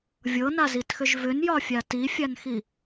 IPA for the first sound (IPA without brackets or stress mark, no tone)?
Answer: vʲ